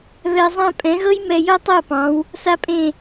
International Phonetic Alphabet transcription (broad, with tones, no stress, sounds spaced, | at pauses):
β ɛ˨ zˤ ã˧ pʼ ɛ̃˨˦ ɣ ɤ˦ j m ɛ˧ j ɤ˦ tˤ ɤ˦˨ p ɑ̃˨˦ w | s a˦ pʼ ẽ˦˨